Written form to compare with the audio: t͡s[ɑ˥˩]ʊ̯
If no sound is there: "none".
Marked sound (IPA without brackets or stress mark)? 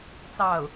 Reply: ɑ˥˩